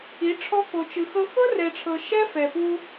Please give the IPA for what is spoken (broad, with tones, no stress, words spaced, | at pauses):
i˨˦ ʈ͡ʂʰɔ˧ko˨t͡ʃɯ˨xɤ˧ xɤ˦rɛ˨ʈ͡ʂʰɤ˨ ʃɛ˦fɛ˨pu˧